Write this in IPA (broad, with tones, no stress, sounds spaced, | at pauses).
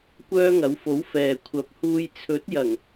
kʷ œː˥ ŋ ɐ˨˥ w f o˨˥ w f ɛː˨ kʷʰ ɐ˨˥ p̚ h uː˧ j t͡sʰ ɵ˨˥ t̚ j ɐ˨˩ ŋ